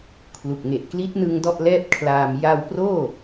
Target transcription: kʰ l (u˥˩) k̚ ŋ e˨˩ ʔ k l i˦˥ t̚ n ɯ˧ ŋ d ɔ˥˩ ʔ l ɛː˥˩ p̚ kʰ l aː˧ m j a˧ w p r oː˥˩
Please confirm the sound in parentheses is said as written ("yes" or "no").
no